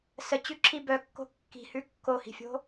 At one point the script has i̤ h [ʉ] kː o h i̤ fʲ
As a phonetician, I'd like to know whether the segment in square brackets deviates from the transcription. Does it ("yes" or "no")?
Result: no